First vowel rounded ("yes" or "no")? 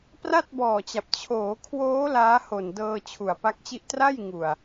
no